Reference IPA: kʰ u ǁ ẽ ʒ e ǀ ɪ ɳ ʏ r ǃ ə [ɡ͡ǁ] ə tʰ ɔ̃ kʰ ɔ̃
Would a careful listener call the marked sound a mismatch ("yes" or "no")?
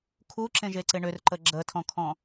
no